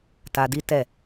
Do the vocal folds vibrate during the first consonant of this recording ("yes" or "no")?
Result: no